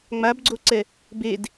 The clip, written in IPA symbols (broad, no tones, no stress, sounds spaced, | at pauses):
ŋ͡m a b ɡ͡ǀ o ǀ ɛ | b e d